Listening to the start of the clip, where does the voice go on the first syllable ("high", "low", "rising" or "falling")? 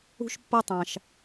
high